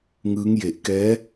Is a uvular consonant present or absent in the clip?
absent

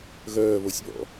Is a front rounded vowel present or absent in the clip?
present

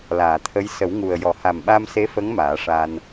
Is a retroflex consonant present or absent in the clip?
present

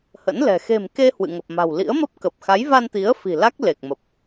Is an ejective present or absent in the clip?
absent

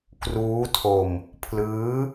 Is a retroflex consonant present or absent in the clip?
absent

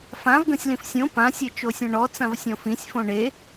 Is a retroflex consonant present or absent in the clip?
present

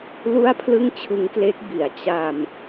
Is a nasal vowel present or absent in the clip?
absent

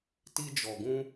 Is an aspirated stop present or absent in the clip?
absent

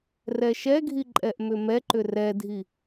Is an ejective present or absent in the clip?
present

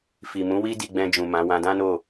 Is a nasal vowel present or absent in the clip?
present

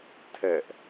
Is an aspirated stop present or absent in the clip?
present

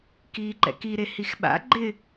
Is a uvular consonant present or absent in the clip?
absent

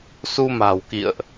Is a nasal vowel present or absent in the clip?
absent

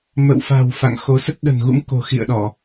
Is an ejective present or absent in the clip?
absent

